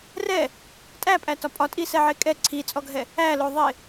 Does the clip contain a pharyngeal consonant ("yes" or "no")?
yes